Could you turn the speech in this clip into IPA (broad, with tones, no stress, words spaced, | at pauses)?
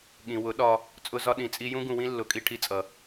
ɠĩ˨ wʊ˨˦ɗɒ˧ | t͡sʼʊ˧zɒ˧ ɗĩ˨t͡sʼi˧jũ˦ ɡũ˧wĩ˦lːʊ˨˦kʼi˧ ʈʰi˧t͡sʼʌ˨